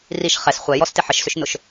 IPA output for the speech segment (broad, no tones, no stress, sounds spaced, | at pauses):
r i ʃ χ ɛ s χʷ ɛ j ɔ s t ɪ ħ ə ʃ s ʏ ʃ n ʊ ʃ